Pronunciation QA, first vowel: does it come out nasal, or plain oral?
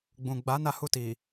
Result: nasal